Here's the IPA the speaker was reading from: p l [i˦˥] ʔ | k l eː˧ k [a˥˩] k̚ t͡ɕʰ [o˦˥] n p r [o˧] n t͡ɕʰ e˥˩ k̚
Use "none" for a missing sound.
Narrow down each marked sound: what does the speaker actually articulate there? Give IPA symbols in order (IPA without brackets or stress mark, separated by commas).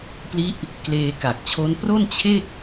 i˦˥, a˨˩, o˦˥, o˥˩